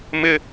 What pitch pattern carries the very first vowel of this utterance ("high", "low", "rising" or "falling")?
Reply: high